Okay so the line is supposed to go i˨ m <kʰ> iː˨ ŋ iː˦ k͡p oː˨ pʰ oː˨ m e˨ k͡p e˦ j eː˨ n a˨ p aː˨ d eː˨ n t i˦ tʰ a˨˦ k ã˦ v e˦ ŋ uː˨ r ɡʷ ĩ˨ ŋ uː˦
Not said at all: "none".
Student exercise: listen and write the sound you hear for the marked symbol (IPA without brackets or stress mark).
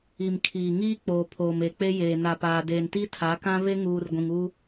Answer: kʰ